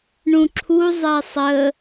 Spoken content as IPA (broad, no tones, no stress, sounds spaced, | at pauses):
ɳ ũ ǁʰ u zˤ ɛ sˤ ə